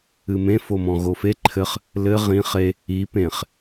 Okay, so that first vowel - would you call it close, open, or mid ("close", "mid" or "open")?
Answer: close